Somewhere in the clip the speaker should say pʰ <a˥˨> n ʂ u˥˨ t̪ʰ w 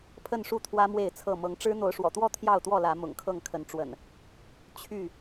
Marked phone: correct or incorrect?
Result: incorrect